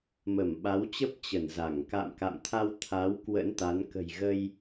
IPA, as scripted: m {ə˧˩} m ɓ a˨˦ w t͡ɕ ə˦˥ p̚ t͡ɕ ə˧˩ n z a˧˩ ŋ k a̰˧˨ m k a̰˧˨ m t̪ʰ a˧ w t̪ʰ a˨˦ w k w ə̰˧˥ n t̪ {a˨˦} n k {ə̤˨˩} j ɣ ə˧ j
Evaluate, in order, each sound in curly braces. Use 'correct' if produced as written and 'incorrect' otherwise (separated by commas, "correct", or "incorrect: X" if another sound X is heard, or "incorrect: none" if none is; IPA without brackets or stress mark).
correct, correct, correct